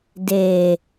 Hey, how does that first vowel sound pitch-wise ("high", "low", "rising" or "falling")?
low